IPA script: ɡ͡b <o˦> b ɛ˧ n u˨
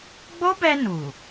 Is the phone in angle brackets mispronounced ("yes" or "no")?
no